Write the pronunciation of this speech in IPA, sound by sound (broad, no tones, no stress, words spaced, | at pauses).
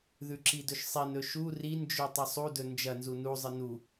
ðʉǁidɵʃsˤin ɵʃu rind͡ʒʉ tˤɐsˤudɵ nd͡ʒɐnzu nuzˤɨ nu